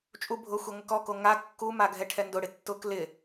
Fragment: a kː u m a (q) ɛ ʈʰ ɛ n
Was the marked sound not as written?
yes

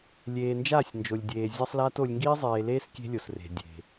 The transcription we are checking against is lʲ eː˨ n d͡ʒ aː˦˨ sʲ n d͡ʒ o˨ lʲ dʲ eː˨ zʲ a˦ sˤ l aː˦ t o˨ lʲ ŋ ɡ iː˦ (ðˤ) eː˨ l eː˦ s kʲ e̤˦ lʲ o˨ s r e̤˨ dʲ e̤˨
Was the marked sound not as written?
yes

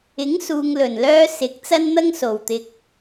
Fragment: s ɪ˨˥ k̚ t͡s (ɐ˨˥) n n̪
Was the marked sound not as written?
yes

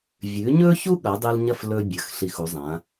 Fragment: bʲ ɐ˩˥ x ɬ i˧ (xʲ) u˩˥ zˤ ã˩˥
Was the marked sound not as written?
yes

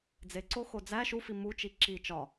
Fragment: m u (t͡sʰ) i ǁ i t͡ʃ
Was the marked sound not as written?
yes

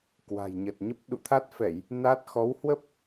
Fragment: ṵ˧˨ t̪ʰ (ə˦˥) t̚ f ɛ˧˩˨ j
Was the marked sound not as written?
yes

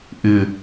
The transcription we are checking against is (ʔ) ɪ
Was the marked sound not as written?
no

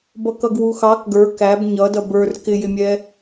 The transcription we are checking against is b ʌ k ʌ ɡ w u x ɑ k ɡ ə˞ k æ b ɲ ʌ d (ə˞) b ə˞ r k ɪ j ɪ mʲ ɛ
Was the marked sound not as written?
yes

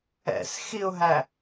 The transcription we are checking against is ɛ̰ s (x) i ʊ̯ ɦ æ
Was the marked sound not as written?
no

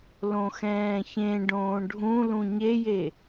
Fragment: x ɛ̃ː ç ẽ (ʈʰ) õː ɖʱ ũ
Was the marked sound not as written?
yes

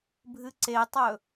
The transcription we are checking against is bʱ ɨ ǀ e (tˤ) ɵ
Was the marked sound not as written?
no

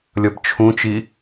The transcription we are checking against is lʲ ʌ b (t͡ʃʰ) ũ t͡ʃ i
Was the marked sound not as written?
no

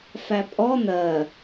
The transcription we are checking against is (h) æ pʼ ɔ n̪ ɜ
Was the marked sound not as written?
yes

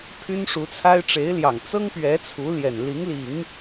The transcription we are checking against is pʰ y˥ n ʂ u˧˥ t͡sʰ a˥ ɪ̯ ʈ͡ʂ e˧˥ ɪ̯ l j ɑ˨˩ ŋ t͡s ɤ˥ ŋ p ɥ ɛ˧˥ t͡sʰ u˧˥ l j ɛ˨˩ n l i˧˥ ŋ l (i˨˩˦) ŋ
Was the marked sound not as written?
no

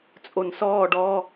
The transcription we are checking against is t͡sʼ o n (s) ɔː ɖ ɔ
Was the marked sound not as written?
no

